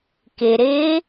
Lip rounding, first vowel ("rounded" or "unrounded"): unrounded